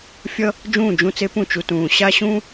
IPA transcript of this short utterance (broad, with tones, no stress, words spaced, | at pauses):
fʲʌ˥ | d͡ʒũː˥˩d͡ʒũ˥˩t͡se˥ pũ˥˩t͡ʃu˧tũː˩ ɕa˥ɕũ˥